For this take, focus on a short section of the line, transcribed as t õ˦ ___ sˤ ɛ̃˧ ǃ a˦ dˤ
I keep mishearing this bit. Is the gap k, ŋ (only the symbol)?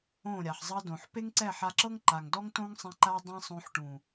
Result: ŋ